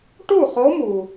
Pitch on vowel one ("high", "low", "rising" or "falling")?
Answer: falling